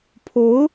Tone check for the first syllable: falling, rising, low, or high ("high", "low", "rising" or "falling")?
rising